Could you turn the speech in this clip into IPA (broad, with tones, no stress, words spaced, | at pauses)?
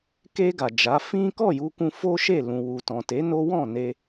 ke˧ ɡa˨d͡ʒa˨˦ fĩ˦ kɔ˦˨ju˧kũ˧ fo˦ʃe˦˨lũ˨ wu˨tɔ̃˨te˨˦ no˦ wɔ̃˦˨ne˧